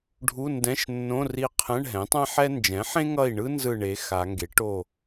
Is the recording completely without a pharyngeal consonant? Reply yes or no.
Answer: no